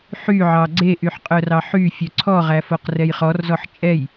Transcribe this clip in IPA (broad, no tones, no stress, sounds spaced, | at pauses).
ħ y ʕ ɑ ɡ͡ǀ e ʔ y ħ qʼ œ r ɑ ħ y fʲ œ ǀʰ ɔ ʁ æ f o q r ɛ j χ ɔ r z ɔ ħ t͡ʃʼ ɛ j